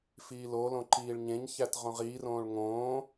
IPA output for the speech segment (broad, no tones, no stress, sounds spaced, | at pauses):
f iː l o l õ ǃ iː ɭ ɲ ẽ ɲ ç æ t ʁ õ ʁ iː r õː ɭ ŋ õː